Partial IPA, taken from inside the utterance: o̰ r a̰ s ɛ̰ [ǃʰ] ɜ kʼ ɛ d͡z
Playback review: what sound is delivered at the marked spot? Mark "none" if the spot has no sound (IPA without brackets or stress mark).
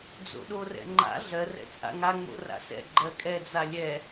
ɡ͡ǃ